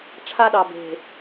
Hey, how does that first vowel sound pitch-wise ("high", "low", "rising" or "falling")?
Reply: high